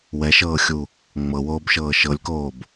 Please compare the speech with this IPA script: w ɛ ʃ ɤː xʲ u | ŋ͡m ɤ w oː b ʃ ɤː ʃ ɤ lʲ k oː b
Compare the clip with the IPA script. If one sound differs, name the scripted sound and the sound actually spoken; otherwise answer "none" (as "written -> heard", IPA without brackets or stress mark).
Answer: none